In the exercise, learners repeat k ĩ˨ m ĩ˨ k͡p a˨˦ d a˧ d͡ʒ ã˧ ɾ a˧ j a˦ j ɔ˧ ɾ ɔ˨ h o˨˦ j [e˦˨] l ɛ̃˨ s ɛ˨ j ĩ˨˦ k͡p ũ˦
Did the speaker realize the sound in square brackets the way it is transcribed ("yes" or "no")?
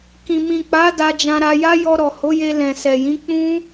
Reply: no